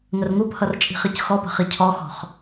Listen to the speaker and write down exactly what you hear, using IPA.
ŋ ə r ŋ u p h ʌ r t͡ʃʼ i̤ χ i c x ɔ p ə̤ χ i cʰ ɔ x ɔ̤ χ

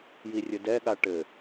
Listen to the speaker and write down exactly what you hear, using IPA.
j i rʲ ɘ d ɛ ɠ a ʈ ɘ

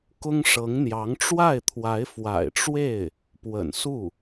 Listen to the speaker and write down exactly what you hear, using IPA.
k ʊ˥ ŋ ʂ ɤ˧˥ ŋ n̪ j ɑ˧˥ ŋ ʈ͡ʂ w a˥˩ ɪ̯ t̪ʰ w a˧˥ ɪ̯ f w a̰˨˩ ɪ̯ ʈ͡ʂ w e˥˩ ɪ̯ | p w ə̰˨˩ n s u˥˩

